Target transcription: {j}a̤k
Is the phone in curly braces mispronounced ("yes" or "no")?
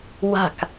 yes